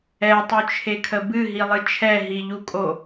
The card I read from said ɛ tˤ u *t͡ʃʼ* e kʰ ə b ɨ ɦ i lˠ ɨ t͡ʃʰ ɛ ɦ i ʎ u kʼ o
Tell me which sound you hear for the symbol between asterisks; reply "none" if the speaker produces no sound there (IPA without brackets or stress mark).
t͡ʃʰ